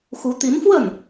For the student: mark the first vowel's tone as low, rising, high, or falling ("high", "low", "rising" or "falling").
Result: rising